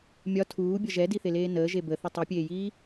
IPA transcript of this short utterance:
mʲ ɒ tʰ uː bʲ ʌ ʒ ɛ d i θ e l eː n əː ʒ e b ə θ ə tˤ i pʲ eː j iː

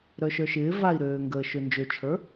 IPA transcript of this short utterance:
ɾ œ ʃ œ ʃ ɪː v a i̯ ɾ øː ŋ ɡ əː ʃ ø n d͡ʒ ø t͡ʃʰ ə˞

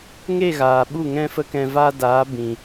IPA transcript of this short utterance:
ŋ e˦˨ ɣ aː˨ ɓ u˦˨ ŋ ɛ̃˦ f ə˦ k ɛ̃˧ v a˦ d aː˨˦ b ĩ˨

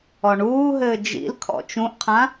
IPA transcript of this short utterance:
ɔ ɳ uː ɦ ɘː d͡ʒ ḭ l kʰ ɔ̰ t͡ʃ ũ ʔ qʰ ã

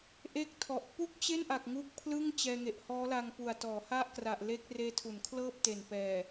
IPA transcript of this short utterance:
ʔ e˥˩ k̚ tʰ ɔ˨˩ ʔ p u˥˩ k̚ t͡ɕ e˥˩ n ʔ a˨˩ k̚ ŋ u˦˥ k̚ pʰ l ɯ˥˩ ŋ t͡ɕ ɛː˧ ŋ e˨˩ ʔ h ɔː˦˥ l a˧ ŋ p u˨˩ a̯ t ɔː˩˦ h a˥˩ ʔ k r a˨˩ ʔ l e˦˥ k̚ r eː˦˥ tʰ u˩˦ n kʰ l ɤː˥˩ p̚ t e˨˩ n p ɛː˨˩

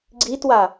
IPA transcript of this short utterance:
ɡ͡ǀ i t w a

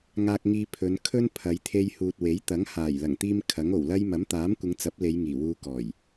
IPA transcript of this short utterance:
ŋ aː˧ k̚ ŋ iː˧ pʰ ɵ˨˧ n kʰ ɵ˧ n pʰ ɐ˨˧ j t̪ʰ e˧ j h uː˨ t̚ w e˨˥ j t̪ ɐ˨˥ ŋ h aː˨˩ j l ɐ˨˩ ŋ t̪ iː˧ m kʰ ɐ˨˥ ŋ o˨˩ w l ɐ˥ j m ɐ˨˥ m t̪ aː˨˥ m kʷ ɪ˨˧ ŋ t͡s ɐ˨˥ p̚ l e˨˧ j ŋ iː˨˩ w uː˧ k ɔː˨˩ j

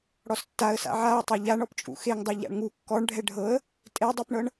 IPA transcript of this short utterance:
ɽ ɔ s tː a ə̯ s a̰ ʕ a ʊ̯ tˤ a ʎ a ɳ ɔ p t͡ʃʼ ṵ x e ŋ dˤ ɤ ʎ a̰ ɳ ŋ u kː ɔ ɳ ɖʱ ɛ ɖʱ ɤ ə̯ | tʼ e dˤ ɤ p ɳ ɤ ɳ

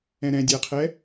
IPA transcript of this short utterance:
ɛ̃ ɾ ɛ̃ dʲ æ qʰ ɛ

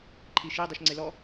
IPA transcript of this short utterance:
ǃʰ i ʃ i dˤ u ʃ ŋ͡ǀ e l ɔ

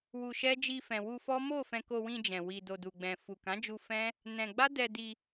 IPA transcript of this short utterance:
w u˧ ʃ ɛ˦ d͡ʒ i˧ f ɛ̃˨ w u˧ f ɔ˦ m o˦˨ f ɛ̃˧ k o˧ w ĩ˧ d͡ʒ ɛ̃˨ w i˨ d o˨ d u˨ ɡ͡b ɛ̃˨ f u˨ k ã˨˦ d͡ʒ u˧ f ɛ̃˦ | n ɛ̃˧ ɡ͡b a˦ d ɛ˧ d i˧

